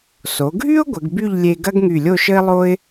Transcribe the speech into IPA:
s o˩˧ ɡʱ y˥ ʊ̯ ɡʷ ə˩˧ ɡ b y˥˧ ʎ lʲ e˧ ɡ ɐ˥ ɡ ŋ y˧˩ lʲ o˥˧ ʃ ə˥ ɪ̯ lˠ o˥ ɪ̯

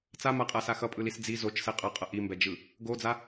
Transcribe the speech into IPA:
t͡s a m a qʼ a s a x ʌ pʼ ɯ l i s d͡z i z o t͡ʃ s ɛ qʼ ʌ qʼ ʌ ʔ i m b ɛ d͡ʒ ɯ | ɡ o d͡z a

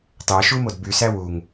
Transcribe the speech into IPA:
t ɑ ʃ u m o d b y s æ w u ŋ

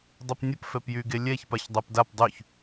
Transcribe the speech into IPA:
dˤ ə p nʲ ə p f ɛ p j y ɡ e lʲ ɛ ç p a ç dˤ ɛ p d a p dˤ y ç

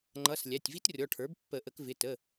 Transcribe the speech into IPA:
ŋ͡ǃ ʌ˩˧˩ s lʲ æ˩˧˩ tʲ v i˦˥ t rʲ ɔ˩˧˩ ʈʰ ə˞˩˥ b pː ə˨˩˦ ʔ ə˨˩˦ k v ɪ˩˧˩ t ə˩˧˩

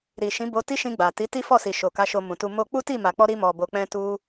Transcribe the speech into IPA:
ɾ i˨ ʃ ĩ˨˦ b o˧ t i˦ ʃ ĩ˧ ɡ͡b a˨ t i˨˦ t i˦ f ɔ˦˨ s i˨ ʃ o˨ k a˨˦ ʃ o˧ m ũ˨ t u˧ m o˧ k͡p u˦ t i˦˨ m a˨ k͡p ɔ˧ ɾ i˧ m ɔ˨ b o˨ k͡p ɛ̃˧ t u˧

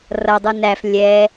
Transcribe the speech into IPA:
r ʌ dˤ u n æ f lʲ ɛ

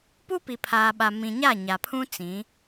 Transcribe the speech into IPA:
p u˦ p i˨ pʰ aː˨ ɓ a˨ m ĩ˨ ɲ a˦˨ ɲ a˨ pʰ ũ˦ t͡s ĩ˨˦

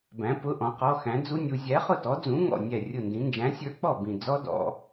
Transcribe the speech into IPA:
b æ̃˩˧ p ʊ˩˧˩ ʔ ɔ̃˩˧ q ɔ˩˧˩ x æ̃˩˧ d͡z u˦˥ nʲ u˩˧ zʲ æ˨˥ χ ʊ˥˩ t ɔ˨˥ d͡z ũ˨˥ ŋ ɔ̰˧˩ nʲ æ˧˩ rʲ ʊ˧˩ n d ĩ˩˧ n d͡ʒ æ̃˨˥ sʲ ə˞˦˥ k͡p ɔ˥˩ b ĩ˧˩ d͡z ɔ˦˥ d ɔ̰˩˧

